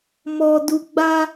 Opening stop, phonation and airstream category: plain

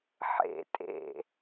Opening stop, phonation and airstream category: ejective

